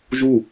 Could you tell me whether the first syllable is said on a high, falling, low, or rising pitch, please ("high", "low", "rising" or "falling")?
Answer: falling